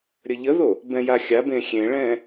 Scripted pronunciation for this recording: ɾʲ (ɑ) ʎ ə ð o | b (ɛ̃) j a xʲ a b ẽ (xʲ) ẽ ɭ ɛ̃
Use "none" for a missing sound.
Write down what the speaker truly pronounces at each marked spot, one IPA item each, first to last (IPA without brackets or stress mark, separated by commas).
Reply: ə, ɛ̃, xʲ